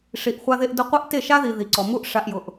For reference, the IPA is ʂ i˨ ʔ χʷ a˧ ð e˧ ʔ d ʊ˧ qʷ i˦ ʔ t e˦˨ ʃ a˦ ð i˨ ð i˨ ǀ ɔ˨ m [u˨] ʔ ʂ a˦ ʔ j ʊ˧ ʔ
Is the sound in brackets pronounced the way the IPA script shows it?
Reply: no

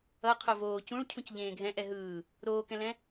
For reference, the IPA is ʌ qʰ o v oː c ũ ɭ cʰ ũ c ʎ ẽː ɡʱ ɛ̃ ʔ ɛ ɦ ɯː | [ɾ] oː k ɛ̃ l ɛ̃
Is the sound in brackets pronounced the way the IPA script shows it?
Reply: yes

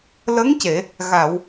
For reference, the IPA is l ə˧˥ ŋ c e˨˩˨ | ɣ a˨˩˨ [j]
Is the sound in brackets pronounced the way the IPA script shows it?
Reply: no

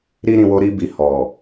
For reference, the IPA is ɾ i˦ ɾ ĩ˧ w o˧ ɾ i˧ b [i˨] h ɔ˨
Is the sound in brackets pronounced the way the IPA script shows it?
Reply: yes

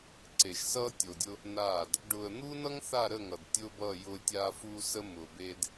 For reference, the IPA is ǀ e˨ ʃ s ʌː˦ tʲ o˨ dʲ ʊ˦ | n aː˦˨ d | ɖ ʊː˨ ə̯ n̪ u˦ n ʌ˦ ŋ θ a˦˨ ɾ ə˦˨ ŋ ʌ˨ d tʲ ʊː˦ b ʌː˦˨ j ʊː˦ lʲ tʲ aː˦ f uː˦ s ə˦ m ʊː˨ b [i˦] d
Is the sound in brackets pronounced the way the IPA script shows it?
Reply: no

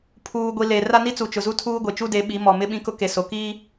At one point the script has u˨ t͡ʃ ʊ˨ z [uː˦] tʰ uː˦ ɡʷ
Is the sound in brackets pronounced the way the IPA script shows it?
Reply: no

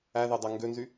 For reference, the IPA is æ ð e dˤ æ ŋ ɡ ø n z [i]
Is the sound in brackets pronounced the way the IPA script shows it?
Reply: no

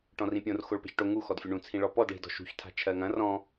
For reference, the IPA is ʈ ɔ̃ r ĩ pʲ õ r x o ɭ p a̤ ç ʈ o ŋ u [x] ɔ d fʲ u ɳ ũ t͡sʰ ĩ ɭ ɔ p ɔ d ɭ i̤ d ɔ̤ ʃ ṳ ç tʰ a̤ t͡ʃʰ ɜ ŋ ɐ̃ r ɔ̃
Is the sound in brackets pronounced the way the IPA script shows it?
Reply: yes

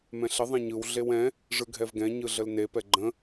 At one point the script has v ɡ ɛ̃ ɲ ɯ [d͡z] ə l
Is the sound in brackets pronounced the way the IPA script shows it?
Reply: no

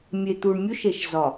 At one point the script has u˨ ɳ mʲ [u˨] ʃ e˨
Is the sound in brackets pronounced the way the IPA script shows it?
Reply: no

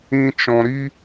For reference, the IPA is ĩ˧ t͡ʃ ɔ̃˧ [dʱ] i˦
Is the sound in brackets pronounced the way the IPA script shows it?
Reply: no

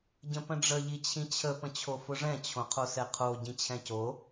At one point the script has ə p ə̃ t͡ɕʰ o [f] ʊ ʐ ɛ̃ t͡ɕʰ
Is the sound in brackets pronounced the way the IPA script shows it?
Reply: yes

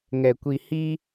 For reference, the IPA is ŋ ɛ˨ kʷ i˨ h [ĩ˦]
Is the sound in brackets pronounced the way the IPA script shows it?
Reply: no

